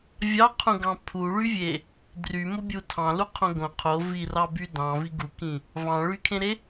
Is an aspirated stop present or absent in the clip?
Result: present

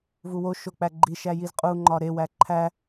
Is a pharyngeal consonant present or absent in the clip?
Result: absent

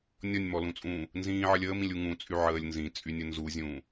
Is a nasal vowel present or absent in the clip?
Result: present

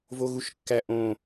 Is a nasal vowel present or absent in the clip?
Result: present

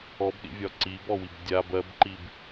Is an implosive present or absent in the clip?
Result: present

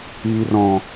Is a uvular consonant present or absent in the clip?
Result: absent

